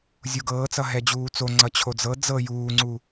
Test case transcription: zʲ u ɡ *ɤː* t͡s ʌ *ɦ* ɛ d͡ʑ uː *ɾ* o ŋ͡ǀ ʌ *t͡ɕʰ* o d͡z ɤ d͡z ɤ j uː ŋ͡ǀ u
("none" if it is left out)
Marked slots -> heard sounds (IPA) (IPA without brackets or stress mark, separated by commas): ɤː, ɦ, t͡s, t͡ɕʰ